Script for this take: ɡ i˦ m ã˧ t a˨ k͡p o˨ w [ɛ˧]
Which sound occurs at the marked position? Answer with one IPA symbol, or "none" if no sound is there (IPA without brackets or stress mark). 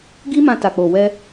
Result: ɛ˧